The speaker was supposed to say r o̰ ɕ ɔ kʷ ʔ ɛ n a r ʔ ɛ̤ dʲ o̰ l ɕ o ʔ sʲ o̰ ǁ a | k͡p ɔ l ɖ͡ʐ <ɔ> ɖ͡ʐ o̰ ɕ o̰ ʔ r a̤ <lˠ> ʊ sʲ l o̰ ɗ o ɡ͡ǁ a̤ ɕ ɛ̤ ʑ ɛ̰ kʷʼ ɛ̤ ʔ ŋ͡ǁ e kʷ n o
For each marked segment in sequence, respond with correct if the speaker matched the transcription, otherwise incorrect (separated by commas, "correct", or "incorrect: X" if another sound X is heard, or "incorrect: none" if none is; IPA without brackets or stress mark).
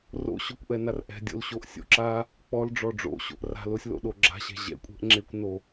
correct, incorrect: l